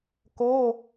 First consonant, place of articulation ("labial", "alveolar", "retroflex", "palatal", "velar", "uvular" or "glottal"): velar